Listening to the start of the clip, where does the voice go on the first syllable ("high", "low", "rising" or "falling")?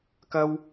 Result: high